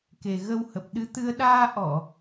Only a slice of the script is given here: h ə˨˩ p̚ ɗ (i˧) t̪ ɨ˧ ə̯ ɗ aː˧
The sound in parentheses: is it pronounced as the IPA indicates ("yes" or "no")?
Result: no